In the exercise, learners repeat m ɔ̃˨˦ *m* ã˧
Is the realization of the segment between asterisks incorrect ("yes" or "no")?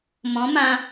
no